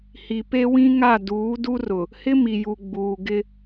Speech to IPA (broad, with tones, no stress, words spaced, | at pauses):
hi˨pe˦wĩ˦ŋa˦˨ duː˨˦du˦ rʊ˨ | hɪ˦mi˨ju˨ ɡ͡buː˨ɡɪ˦